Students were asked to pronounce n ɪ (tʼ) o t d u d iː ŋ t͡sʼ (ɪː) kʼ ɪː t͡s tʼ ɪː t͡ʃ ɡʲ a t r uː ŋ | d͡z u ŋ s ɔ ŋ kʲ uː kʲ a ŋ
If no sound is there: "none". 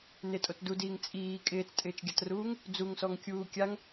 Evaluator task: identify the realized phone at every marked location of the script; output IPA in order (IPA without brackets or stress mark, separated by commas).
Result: tʼ, iː